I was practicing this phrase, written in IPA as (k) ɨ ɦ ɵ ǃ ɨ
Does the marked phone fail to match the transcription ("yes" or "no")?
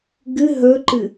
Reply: yes